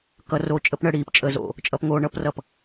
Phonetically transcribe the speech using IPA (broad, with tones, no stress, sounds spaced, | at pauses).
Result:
k ʌ˨ r o˨ t͡ʃʼ ə˨ p ɳ ə˨ ɽ iː˨ p t͡ʃʼ ə˨ z o̰˨ | t͡ʃʼ ʌ˨ p ŋ oː˨ ɳ ʌ˦ p r ʌ˨ p